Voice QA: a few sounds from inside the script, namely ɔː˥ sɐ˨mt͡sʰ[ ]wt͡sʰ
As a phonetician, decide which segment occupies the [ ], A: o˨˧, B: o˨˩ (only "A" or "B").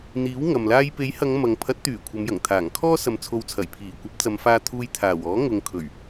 A